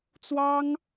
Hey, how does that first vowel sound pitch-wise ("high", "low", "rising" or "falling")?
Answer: high